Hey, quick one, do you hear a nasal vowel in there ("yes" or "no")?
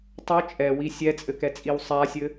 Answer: no